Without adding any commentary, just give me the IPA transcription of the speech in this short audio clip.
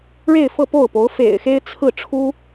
ɻ e˥˧ ɪ̯ f ɤ˥˧ p o˥˩ ʊ̯ p o˧˥ ʊ̯ f ḛ˨˩ ɪ̯ x e˥ ɪ̯ t͡sʰ ɹ̩˥˩ ʈ͡ʂʰ u˥

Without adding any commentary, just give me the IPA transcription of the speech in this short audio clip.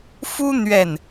f u˦ n̪ ɥ ɛ˥˨ n

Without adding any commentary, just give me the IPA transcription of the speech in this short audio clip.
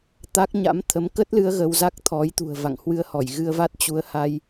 t̪ a˦˥ k̚ ɲ a̰˧˥ m t̪ʰ ə˨˦ m k ə˦˥ t̚ l ɨ˧ ə̯ ɣ ə˧ w z a˦˥ k̚ t̪ʰ ɔ˨˦ j t̪ ṳ˨˩ ə̯ v a̰˧˨ ŋ h w ɨ˧ ə̯ h ɔ˧˩ j ɣ ɨ˧ ə̯ v a˦˥ t̚ t͡ɕ u˨˦ ə̯ h a˧ j

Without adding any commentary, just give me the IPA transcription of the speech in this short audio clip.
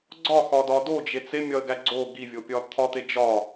ɡ͡ǀ ɒ x ɒ d ɒ d o d͡ʒ e t͡s e mʲ ɒ ə̯ ɡ æ ɡ͡ǀ o ɡ i vʲ o pʲ ɒ t̪ʰ ɒ t̪ e d͡ʒ ɒ

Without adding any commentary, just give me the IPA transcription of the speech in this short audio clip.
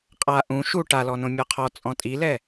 qʼ a ʔ ũ ʃ u ʈ a l ɔ n õ mʲ ɔ qʰ ɔ t͡sʼ ɔ̃ tʼ i l ɛ

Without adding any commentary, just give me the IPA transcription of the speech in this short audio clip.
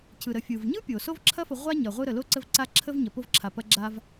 cʰ ɯ˩ ɾ ə˩ fʲ ɯ˩ v ɲ ɯ˥ pʲ o˩ s o˥ v ǁʰ ɐ˥ f ə˨ ʁʷ a˥ ɲ ɐ˩ ʁʷ ɯ˦ ɾ ə˩ l o˥ ǀ ə˦ v ǀ a˦ ǁʰ ə˥ v ɲ ɐ˩ p o˦ v ǁʰ a˩ p ɐ˨ ɡ͡ǁ a˨ v

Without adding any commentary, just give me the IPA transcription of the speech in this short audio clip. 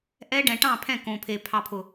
ʔ ɛ˦ ɖ ɛ̃˨ ʈ ɑ̃˦˨ pʰ ɛ̃˦˨ k õ˨ pʰ e˨ pʰ ɑ˨ pʰ ʊ˨

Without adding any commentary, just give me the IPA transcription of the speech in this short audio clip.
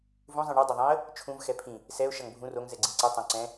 v ũ zˤ ĩ ɳ u dˤ ʌ ðˤ ĩ ə̯ | t͡ʃʰ ũ v x ɛ pʰ ĩ | s ɛ ʊ̯ ʃ ʌ ŋ bʱ ũ r o ŋ z ɛ ɡ͡ǀ ĩ ǀ ɯ tˤ õ ǀ ɛ̃

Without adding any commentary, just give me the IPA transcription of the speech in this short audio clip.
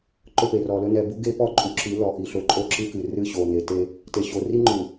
ǃ ɵ˦˨ p e˨ r ɔ˨ l ɵ˦ n ɛ˨ b u˦ ɡ e˦ p ɔ˦ ǃʼ u˨ ǁ ɨ˨˦ l ɔ˨ ʔ i˨ ɬ ɵ˨ ǃʼ o˦ ǁ ɨ˦ k ɨ˨ r ɨ˦˨ ɕ o˨ n e˨ t e˦ | t e˨ ɕ o˨ r i˦ ŋ͡ǃ u˨

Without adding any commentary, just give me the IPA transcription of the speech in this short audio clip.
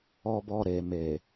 ɔ˧ b ɔ˧ ɾ e˨ m e˨

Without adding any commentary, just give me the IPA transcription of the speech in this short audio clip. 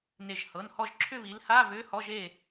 n e˧˩ ʒ h ɤ˩˧˩ n h ɔ˥˨ ʒ ǁʰ ʏ˥˨ β i˨˦ l h a˧˥˧ β ʏ˧˥˧ h ɔ˧˥˧ ʒ e˥˨

